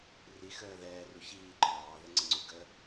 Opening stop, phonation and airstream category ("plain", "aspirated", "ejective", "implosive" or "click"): click